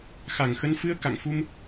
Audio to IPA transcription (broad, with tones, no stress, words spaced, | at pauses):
xa˨˩ŋxə˧n fɨ˧ə̯ ka̰˧˨ŋfu˧m